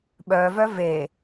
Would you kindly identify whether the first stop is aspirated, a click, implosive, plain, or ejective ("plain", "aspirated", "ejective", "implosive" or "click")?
implosive